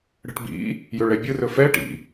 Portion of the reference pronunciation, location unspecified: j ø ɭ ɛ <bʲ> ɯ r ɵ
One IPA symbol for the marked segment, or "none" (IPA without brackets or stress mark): bʲ